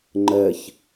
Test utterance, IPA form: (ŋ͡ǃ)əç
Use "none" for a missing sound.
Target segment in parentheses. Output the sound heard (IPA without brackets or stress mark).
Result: ŋ͡ǃ